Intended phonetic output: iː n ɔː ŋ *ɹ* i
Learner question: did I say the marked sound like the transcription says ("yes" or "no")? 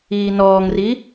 no